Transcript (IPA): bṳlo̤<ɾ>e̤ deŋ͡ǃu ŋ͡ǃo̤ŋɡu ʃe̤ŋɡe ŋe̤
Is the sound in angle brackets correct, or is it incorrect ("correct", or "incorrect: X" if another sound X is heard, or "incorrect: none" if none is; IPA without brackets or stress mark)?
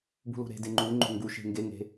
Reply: correct